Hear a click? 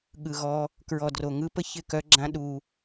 yes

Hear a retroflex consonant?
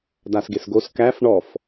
yes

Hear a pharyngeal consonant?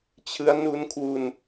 no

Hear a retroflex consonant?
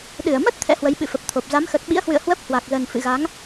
no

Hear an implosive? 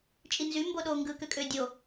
yes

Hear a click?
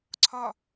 yes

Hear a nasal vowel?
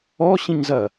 yes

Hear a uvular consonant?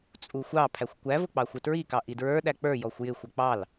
no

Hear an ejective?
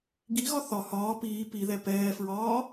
no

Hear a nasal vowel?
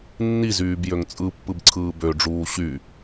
no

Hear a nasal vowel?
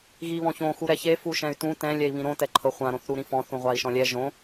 yes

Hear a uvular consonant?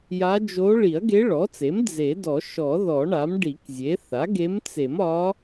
no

